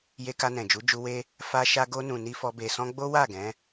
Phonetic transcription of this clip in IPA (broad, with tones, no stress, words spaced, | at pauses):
je˧ka˧nɛ̃˨ d͡ʒu˨˦d͡ʒu˧ we˦ | fa˧ʃa˧ɡo˧nũ˨ ni˧fɔ˧ be˨sɔ̃˧ ɡ͡bo˦wa˦˨ɡɛ̃˨˦